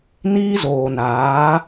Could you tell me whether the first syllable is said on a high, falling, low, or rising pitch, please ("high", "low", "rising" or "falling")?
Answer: high